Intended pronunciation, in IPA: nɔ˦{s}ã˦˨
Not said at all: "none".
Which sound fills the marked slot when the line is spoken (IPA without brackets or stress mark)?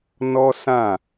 s